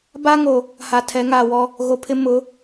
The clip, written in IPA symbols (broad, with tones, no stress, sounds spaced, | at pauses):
b a˦ ŋ o˨ | h a˨ tʰ ɛ˨˦ ŋ aː˨ w ɔ˦ | ɣ o˨ pʰ ɪ˦ m ʊ˨˦